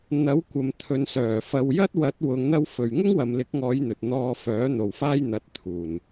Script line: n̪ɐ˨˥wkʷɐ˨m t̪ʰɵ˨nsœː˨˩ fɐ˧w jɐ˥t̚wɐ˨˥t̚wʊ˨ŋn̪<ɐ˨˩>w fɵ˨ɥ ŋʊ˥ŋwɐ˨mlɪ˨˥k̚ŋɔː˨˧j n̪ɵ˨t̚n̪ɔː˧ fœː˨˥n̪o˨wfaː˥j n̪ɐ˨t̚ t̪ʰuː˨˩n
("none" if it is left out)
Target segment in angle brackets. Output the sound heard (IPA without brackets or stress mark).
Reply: ɐ˧